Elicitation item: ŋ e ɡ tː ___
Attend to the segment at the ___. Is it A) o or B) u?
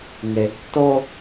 A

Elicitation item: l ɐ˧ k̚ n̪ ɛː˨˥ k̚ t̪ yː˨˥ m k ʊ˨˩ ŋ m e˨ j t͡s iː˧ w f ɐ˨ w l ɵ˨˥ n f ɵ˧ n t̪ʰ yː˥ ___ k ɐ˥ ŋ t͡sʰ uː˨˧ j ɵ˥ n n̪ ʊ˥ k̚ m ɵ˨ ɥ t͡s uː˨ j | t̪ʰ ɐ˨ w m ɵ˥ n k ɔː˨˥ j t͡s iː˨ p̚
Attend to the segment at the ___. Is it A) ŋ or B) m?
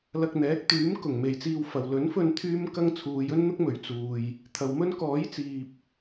B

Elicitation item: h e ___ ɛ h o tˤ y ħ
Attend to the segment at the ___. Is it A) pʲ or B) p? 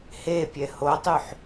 A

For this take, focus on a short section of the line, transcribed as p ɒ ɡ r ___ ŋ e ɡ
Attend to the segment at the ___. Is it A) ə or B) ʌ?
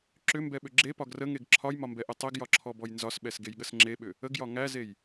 A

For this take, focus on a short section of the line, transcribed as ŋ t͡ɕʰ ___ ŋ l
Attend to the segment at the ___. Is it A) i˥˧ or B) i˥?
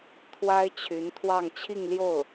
A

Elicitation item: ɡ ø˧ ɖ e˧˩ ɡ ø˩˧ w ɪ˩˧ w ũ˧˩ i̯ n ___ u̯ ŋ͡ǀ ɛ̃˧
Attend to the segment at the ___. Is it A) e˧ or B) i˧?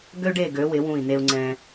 A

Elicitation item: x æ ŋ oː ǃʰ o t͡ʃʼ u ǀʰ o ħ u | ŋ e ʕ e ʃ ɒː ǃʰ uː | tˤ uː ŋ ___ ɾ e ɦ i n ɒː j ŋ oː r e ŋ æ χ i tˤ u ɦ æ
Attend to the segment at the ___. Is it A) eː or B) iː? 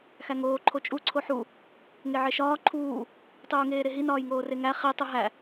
A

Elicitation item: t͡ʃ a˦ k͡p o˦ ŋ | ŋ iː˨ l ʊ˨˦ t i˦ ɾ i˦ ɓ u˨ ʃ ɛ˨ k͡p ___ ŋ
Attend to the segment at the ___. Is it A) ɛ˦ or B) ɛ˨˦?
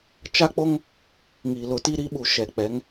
B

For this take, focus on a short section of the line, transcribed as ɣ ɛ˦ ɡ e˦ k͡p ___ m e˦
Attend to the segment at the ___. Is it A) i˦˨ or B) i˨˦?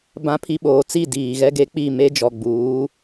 A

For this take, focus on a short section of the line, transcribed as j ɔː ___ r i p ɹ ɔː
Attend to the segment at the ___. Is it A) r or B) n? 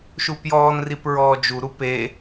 B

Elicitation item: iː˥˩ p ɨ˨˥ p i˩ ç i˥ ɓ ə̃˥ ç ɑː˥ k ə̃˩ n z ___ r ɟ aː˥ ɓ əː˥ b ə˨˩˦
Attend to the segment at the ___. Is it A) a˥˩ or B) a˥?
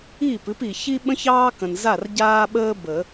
A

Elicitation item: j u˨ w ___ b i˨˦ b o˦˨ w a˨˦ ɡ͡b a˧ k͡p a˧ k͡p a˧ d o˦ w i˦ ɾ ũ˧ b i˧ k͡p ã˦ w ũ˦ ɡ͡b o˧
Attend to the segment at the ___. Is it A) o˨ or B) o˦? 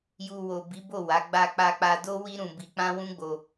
A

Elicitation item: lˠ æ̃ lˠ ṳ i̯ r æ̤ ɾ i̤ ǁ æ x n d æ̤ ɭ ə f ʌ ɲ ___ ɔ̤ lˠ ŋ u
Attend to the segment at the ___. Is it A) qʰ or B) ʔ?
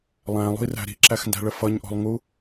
B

